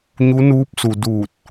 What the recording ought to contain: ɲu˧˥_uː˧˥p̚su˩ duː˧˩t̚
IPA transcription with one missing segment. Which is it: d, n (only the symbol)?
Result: n